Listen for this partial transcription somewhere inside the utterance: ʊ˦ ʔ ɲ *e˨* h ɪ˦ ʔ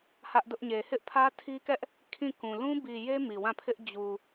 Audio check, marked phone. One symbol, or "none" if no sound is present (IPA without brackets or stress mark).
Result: e˨